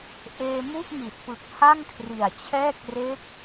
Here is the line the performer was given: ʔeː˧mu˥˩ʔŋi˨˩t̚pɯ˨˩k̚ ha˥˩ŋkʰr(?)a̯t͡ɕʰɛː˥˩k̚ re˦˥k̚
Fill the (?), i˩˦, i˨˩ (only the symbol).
i˨˩